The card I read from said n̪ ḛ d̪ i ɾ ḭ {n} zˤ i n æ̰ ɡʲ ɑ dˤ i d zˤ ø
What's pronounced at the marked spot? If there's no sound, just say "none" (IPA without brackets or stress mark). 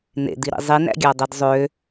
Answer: none